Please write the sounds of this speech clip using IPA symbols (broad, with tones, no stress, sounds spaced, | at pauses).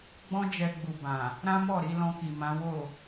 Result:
ɡ͡b ɔ̃˦ d͡ʒ ɛ˧ ɡ͡b u˨ b ã˨ | ɾ ã˦ m ɔ˦˨ ɾ i˧ l ɔ̃˧ k i˨ m ã˨˦ w o˦˨